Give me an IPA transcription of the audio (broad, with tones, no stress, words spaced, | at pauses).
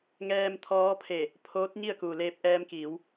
ŋɛː˧mt̪ʰɔː˧˥pʰe˧˩ | pʰoː˧˥t̚ɲi˥˨ə̯ku˩ leː˧p̚ʔɛː˧mkiː˩˧w